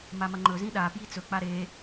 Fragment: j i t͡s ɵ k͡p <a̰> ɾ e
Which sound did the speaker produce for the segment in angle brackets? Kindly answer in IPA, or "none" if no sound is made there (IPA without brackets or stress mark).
a